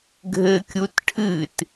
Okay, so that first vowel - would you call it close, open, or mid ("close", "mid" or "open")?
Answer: mid